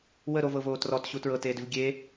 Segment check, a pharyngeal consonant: absent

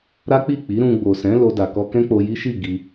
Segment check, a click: absent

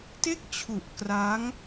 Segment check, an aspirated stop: present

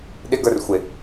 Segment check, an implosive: present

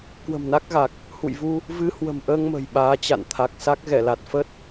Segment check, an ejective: absent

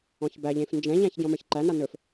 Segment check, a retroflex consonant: absent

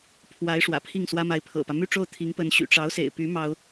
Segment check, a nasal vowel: absent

